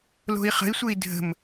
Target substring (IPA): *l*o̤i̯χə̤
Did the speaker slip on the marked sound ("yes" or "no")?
no